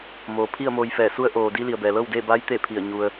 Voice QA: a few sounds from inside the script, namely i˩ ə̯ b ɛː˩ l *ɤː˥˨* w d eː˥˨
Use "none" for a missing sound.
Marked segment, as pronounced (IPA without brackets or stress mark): ɤː˥˨